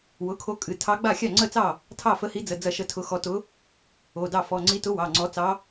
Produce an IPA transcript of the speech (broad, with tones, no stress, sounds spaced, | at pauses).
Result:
w ʊ˩˧˩ kʰ o˧˥ kʼ ɨ˩˧˩ tʰ ɑ˧˥ ɡ͡b a˥˩ xʲ ɑ˥˩ ŋ͡ǀ ə˥˩ t͡s ɑ˥˩ | tʰ ɑ˥˩ f ə˧˥ h i˧˥ d͡z ə˩˧˩ d͡z ɐ˥˩ ʃ ə˥˩ tʰ ʊ˧˥ x ɔ˧˥ t ʊ˧˥ | o˩˧˩ d ɑ˥˩ f ɔ˩˧˩ ŋ͡ǀ i˧˥ t ʊ˧˥ w ɑ˩˧˩ ŋ͡ǀ ɔ˧˥ t͡s ɑ˧˥